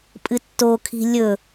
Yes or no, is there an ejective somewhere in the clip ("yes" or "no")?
yes